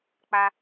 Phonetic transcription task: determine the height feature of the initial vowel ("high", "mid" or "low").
low